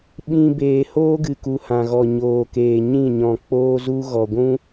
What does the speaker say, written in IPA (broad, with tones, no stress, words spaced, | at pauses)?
ɓĩ˦beː˧ hoː˦ɡɨ˨ku˨ hã˨ɣɔ˨ɲoː˨keː˨ ɲĩ˦˨ɲɔ̃˨ k͡poː˦zu˦ ɣɔ˨ɡʷũ˦